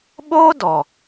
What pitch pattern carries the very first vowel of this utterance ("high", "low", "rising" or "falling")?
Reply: high